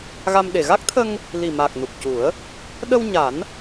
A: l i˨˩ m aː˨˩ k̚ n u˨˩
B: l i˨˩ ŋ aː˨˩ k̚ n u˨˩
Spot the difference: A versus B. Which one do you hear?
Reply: A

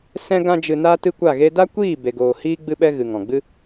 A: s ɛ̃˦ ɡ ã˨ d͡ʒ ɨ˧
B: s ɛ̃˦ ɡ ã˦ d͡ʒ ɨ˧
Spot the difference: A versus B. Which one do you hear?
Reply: B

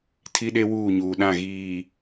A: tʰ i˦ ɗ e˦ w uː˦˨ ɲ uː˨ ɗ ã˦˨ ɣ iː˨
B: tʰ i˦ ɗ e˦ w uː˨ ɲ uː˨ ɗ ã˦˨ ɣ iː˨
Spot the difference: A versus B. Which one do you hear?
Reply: A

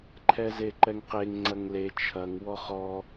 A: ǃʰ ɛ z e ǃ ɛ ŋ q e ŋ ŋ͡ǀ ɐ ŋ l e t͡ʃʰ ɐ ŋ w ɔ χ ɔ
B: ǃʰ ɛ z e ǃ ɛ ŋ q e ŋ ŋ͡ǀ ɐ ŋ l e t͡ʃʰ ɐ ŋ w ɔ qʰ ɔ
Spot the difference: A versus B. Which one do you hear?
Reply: A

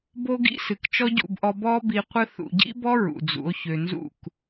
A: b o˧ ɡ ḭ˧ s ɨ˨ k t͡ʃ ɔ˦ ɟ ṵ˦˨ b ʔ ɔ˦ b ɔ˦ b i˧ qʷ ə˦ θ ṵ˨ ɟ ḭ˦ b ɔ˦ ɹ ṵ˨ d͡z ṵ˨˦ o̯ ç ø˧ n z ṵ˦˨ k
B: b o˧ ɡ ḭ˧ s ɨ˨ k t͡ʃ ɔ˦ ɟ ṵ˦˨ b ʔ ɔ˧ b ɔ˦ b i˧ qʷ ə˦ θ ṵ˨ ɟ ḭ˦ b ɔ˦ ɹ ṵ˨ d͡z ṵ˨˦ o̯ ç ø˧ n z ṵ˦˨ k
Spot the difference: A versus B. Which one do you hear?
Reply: B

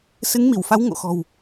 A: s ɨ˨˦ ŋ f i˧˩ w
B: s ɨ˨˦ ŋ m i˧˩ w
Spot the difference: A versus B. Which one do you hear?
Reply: B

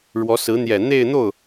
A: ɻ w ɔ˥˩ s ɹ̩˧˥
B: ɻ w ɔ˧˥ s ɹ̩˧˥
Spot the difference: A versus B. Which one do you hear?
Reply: B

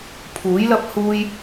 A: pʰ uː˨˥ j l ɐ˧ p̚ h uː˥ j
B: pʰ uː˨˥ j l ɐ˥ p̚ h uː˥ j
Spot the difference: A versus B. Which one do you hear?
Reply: B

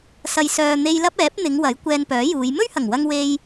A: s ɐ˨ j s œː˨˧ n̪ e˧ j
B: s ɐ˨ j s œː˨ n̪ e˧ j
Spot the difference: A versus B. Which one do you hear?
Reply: B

